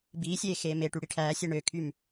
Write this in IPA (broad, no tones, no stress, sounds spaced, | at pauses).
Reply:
b iː sʲ eː x eː m e ʈ y ɽ i ʈʰ æː sʲ e ɳ ø kʰ y m